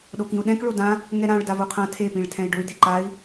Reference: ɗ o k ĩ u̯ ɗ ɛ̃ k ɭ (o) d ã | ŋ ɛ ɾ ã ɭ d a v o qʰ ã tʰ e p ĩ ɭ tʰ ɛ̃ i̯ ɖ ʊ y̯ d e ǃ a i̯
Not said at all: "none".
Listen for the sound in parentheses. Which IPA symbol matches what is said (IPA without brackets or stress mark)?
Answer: o